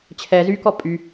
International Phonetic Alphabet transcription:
t͡ɕʰɛ zykɔ pʼy

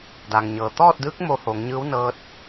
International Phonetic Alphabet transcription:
da˩ŋɲɤː˩ t̪ɔː˥˨t̚dɯː˧˥k̚ mo˧ho˩˧ŋɲɯː˧˥w nɤː˧t̚

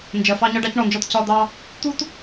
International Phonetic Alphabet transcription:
nd͡ʒɜ˨fɑ˦ ɲɒ˦ɖɑ˦cɳɔ˨nd͡ʒɔ˦t cɒ˦d̪ɑ˦ | t̪u˦t

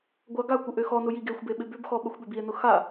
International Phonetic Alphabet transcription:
ɡʷaɡakʷɪ ʔøxɔnʊ jiɡexʷbe ɓɪbʏbxɔ ɓɐxʷɓʏbie̯nʊ xa

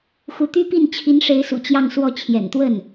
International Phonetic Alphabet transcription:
xu˧˥t̪y˥pi˥˩n t͡ɕʰi˧˥nʂe˧˥ɪ̯sṵ˨˩ t͡ɕjɑ˥˧ŋswɔ˥˩ t͡ɕʰjɛ̰˨˩nt̪wə˥˩n

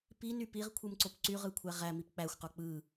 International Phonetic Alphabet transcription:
piny piʁkʷʰɯmǀop ǀyʁɯkʷʰæ ʁæmip k͡pæxʷqo k͡pɯ

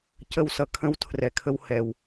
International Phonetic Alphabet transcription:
cə˦˨wsʌ˧ kʰə̃˦w tʰrɛ˨kʰə˧w hɛ˨w

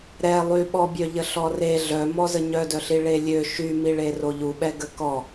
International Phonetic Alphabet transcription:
ɾɛ lˠyɓɔbʲœʎə ɬɔre ɮœmɔzə ɲœdœɬi ɭelʲø ʃymiɭe roʎuɓɛ ɡəkɔ

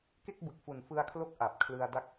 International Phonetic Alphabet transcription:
ke˥˩k̚bɯ˨˩k̚fu˨˩n fɯ˧a̯kʰlo˦˥k̚ ʔa˨˩p̚ kʰlɯ˧a̯da˥˩k̚

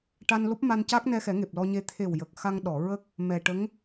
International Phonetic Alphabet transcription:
ʈa˧nlo˦˥p̚ma˧n caː˦˥k̚nɛ˧xɛ˨˩˦ ŋe˨˩p̚lɔ˧ɲe˧ t̪ʰe˨˩w jə˨˩k̚ xa˧ŋɗɔ˨˩˨ɹə˦˥k̚ | mɛ˨˩ʈə˧˥ŋ

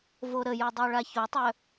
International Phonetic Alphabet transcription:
voɾəjo dˤoɭaçotˤœ

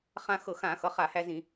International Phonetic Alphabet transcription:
χã˧ xɤ˧˩˧xã˧˩˧xʌ˩˧˩ χa˧˩˧hæ˧zĩ˧˩˧

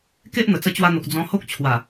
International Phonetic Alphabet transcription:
ke˦ʔn̪ə˨˩ t͡sə˧t͡ɕwa˧n̪o˨k̚ d͡zɔ̃˧ho˦k̚t͡ɕʰwa˨˩

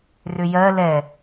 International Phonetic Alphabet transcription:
rʏjɜ lɛ

